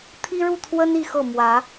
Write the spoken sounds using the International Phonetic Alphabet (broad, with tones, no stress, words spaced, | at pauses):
t̪ʰi˦ɻu˥˨t̪ʰwə˦n i˥˨xɤ˥˨ mwä˨˦